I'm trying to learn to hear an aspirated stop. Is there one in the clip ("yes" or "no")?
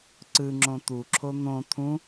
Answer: yes